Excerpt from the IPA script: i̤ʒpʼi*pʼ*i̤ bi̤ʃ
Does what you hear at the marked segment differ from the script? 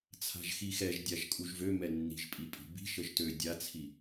no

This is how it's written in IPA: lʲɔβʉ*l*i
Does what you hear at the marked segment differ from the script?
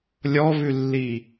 yes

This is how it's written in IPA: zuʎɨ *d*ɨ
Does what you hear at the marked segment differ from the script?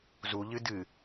no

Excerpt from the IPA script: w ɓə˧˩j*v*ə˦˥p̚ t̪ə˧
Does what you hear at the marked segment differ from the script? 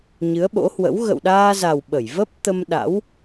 no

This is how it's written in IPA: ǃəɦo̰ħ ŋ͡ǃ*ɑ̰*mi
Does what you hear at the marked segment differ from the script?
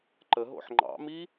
no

